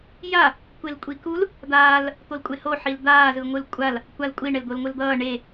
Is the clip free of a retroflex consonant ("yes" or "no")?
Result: no